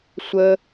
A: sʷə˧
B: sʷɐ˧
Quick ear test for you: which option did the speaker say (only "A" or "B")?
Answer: A